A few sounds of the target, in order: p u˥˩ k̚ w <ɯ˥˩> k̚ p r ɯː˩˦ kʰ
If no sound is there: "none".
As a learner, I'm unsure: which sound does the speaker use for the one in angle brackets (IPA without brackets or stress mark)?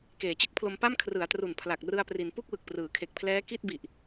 ɯ˨˩